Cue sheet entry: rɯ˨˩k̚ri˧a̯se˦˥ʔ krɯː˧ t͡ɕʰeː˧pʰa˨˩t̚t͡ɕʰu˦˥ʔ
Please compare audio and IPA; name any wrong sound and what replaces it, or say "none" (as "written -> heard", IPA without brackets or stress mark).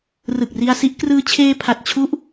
e˦˥ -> i˦˥